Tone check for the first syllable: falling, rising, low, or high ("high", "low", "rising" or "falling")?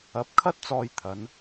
rising